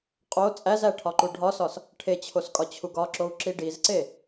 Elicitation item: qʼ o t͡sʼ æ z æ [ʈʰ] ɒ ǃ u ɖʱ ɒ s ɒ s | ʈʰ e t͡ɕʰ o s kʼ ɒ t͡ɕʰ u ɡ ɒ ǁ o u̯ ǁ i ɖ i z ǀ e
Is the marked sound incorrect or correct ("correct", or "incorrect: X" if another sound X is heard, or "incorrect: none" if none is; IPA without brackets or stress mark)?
correct